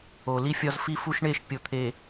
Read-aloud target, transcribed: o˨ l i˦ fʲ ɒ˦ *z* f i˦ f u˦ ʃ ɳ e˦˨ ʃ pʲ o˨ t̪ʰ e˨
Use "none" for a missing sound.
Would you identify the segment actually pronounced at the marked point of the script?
z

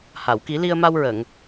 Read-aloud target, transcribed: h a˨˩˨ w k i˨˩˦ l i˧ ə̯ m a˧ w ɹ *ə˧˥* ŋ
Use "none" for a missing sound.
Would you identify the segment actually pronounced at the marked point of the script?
ə˨˩˨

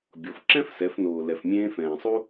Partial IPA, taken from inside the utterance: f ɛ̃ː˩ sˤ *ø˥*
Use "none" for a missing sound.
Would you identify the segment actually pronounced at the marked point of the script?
u˥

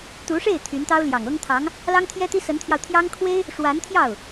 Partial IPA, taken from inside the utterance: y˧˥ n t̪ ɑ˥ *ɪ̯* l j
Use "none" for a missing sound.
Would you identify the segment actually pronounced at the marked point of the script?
ʊ̯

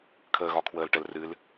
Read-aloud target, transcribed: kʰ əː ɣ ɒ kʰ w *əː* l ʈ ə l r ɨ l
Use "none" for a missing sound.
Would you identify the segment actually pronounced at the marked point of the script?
əː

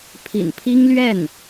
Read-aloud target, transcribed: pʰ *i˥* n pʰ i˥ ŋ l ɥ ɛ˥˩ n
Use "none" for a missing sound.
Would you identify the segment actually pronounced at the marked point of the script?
ḭ˨˩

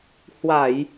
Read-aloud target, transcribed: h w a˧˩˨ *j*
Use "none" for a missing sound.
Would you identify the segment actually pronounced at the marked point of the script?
j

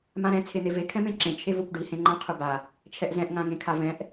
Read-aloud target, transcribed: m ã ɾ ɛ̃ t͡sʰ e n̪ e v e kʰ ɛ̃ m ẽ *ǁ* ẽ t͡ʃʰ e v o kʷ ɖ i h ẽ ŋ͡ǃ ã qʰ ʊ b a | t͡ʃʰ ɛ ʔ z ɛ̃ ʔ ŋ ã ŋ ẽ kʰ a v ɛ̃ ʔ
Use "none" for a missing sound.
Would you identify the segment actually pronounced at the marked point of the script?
ǁ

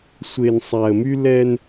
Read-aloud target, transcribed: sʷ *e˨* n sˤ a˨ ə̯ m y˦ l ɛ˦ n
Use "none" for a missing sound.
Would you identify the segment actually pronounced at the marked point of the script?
e˨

